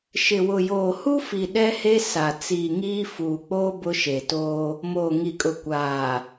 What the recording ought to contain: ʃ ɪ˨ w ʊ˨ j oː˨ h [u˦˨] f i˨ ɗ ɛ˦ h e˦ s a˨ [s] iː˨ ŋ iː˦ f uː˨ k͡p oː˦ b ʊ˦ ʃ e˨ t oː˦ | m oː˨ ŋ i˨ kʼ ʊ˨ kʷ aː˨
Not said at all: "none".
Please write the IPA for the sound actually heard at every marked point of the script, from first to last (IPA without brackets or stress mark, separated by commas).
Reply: u˦, t͡s